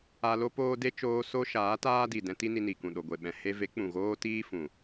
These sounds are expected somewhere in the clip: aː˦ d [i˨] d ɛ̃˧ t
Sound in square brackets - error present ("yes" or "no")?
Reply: no